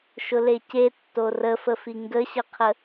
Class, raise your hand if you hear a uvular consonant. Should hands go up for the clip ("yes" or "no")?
yes